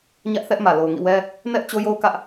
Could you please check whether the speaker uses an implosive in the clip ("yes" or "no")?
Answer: no